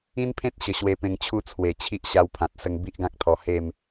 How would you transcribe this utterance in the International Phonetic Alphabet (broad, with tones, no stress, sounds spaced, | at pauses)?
ĩ˦ n pʰ ẽ˦ t̚ ɕ ə˨˩ ɕ w e˧ p ẽ˧ ŋ t͡ɕʰ u˥˧ t͡sʰ w e˨˩ t͡ɕʰ i˦ ʔ ɕ a˧ w pʰ ã˨ t̚ s ə˧ ŋ b i˦ ʔ ɡ ã˦ k̚ t̪ʰ ɔ˧ h e˥˧ m